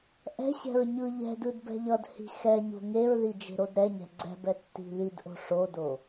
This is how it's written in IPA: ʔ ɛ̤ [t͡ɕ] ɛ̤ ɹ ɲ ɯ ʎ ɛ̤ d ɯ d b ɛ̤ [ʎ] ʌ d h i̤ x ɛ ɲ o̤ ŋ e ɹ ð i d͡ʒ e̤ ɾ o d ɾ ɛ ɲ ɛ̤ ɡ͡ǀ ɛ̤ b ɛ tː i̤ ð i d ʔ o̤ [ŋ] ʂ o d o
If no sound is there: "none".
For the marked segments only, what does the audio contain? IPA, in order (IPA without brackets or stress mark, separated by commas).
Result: ɕ, ʎ, none